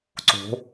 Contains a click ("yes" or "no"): yes